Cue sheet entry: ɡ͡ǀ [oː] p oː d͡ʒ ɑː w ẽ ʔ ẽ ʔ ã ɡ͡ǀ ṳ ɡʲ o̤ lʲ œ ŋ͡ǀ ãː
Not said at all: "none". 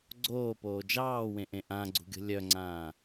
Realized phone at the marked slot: oː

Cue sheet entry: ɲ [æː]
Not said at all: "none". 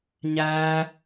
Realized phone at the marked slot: æː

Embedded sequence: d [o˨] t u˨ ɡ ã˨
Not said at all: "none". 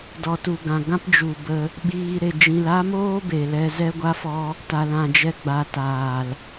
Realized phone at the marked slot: ɔ˨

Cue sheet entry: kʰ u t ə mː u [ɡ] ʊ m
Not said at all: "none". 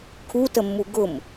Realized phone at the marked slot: ɡ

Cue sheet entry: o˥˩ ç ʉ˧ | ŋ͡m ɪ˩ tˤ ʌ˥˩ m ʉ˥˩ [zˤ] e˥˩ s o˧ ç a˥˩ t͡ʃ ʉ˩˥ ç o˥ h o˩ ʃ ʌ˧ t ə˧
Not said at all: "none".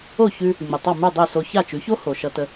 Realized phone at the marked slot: dˤ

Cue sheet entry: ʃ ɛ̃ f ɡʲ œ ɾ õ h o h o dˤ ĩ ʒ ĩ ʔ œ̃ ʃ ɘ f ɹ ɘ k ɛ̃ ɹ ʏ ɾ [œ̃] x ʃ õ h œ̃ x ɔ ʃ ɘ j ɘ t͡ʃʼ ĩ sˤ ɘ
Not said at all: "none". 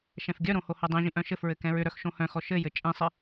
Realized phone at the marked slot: œ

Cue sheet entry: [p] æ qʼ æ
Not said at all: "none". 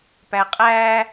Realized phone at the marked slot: p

